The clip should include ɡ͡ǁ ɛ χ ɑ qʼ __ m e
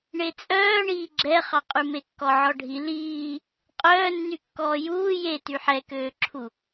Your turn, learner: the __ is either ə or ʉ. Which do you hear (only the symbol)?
ʉ